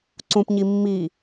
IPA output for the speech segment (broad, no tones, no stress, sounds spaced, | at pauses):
ǀ ũ p ɲ i mː i